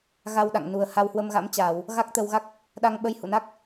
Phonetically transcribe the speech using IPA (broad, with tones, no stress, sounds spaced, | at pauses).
ɣ a˧ w ɗ a̰˧˨ ŋ n u˨˩ ə̯ h a˧ w h w ə˧ m ɣ a̰˧˥ m t͡ɕ aː˧˩˨ w | ɣ a˦˥ k̚ t̪ ə˧ w ɣ a˦˥ k̚ | ɗ a˧ ŋ ɓ ə˧ j h ṵ˧˨ n a˦˥ k̚